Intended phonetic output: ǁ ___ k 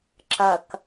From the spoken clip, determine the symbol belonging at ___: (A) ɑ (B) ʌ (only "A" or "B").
B